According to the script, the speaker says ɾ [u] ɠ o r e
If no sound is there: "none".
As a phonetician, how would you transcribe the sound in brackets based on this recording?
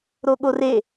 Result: o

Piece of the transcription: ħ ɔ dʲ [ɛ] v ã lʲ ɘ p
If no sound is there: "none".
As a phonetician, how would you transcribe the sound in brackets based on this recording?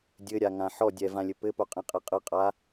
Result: ɛ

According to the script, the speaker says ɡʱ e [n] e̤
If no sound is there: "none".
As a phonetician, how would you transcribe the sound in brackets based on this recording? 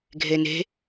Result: n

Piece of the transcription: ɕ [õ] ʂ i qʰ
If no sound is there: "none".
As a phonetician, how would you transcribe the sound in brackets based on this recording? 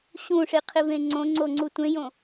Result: ũ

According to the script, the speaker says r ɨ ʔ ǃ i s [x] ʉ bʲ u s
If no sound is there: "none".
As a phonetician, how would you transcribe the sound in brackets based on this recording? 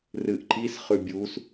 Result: χ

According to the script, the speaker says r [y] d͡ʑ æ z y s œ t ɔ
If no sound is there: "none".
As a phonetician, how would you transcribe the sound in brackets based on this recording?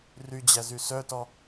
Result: y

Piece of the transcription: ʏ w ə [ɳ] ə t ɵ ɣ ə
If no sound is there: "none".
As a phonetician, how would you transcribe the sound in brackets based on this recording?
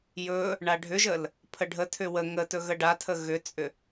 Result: ŋ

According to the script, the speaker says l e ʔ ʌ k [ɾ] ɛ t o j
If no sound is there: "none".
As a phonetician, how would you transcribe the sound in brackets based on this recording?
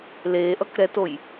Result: ɾ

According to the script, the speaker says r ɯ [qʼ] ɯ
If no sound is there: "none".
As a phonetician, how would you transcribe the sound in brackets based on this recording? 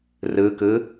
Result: k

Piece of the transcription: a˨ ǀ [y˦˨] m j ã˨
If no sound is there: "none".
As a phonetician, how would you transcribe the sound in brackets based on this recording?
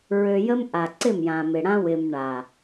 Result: ɪ˦˨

